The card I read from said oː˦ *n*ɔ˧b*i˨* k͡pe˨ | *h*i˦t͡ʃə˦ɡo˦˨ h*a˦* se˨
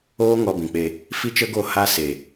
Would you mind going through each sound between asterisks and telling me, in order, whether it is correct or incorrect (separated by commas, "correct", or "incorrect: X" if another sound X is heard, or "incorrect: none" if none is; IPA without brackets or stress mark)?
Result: incorrect: ŋ, incorrect: ĩ˨, incorrect: f, correct